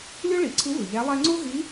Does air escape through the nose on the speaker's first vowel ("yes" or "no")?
no